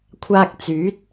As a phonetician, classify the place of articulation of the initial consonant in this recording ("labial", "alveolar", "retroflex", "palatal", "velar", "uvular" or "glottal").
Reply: velar